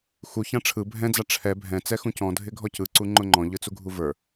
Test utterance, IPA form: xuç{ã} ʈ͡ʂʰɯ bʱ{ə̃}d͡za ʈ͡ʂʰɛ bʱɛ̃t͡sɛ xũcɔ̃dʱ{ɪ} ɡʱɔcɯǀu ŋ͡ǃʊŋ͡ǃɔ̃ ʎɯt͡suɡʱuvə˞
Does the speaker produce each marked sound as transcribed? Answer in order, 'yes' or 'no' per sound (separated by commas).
yes, no, yes